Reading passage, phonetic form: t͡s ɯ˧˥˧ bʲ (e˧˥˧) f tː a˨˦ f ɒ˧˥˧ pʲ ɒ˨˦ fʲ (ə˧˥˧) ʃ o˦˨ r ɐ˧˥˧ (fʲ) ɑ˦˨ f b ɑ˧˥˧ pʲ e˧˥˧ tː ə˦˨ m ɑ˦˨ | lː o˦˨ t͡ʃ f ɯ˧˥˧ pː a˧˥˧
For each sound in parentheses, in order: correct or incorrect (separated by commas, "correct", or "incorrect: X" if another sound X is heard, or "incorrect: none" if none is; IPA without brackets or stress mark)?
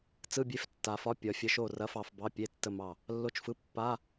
incorrect: e˦˨, incorrect: ə˨˦, incorrect: f